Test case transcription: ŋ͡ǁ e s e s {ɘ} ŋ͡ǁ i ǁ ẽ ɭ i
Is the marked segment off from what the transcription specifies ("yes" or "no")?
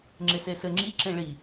no